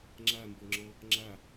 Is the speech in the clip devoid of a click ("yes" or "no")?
no